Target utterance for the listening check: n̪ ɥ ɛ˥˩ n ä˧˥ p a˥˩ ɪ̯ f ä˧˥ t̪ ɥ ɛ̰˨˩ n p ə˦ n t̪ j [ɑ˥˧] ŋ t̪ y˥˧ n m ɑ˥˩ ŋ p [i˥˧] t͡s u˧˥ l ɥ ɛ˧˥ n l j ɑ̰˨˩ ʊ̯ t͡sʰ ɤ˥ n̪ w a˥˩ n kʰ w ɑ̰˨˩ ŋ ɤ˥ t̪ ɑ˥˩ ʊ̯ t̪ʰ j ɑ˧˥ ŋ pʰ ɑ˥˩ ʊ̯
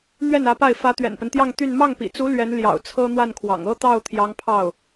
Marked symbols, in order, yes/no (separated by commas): yes, no